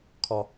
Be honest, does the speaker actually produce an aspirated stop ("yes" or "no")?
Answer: yes